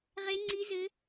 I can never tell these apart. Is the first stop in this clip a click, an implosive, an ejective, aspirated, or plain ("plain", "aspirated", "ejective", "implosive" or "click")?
click